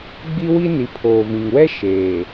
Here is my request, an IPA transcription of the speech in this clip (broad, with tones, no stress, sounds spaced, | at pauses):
ɡ͡b i˦ w i˦ n i˨ pʰ oː˨ v ĩ˨ ŋ w ɛ˦ ʃ eː˨